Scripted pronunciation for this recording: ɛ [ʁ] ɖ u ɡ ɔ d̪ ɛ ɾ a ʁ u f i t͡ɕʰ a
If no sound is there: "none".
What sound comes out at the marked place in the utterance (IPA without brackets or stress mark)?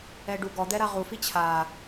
none